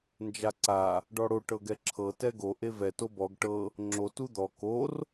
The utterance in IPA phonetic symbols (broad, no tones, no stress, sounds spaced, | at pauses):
n d͡ʒ a ǀ a | ɖ ɔ ɽ o ʈ ɤ ɡ ɛ ǁʰ ɤ t ɛ ɡ o ʔ e v ɛ t o b ɔ ɡ ʈ ɤ | ŋ͡ǁ o t u d̪ ɔ k o r